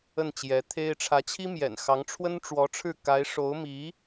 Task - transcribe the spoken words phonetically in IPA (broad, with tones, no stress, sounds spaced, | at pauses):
ə˥˩ n t͡ɕ j ɛ˧˥ t̪ʰ e˥ ɪ̯ ʈ͡ʂʰ ä˧˥ t͡ɕʰ i˥ m j ɛ̰˨˩ n x ɑ˧˥ ŋ ʈ͡ʂʰ w ə˥ n ʈ͡ʂ w ɔ˧˥ ʈ͡ʂʰ ɻ̩˥˩ k a˧˥ ɪ̯ ʂ o˧˥ ʊ̯ m i˧˥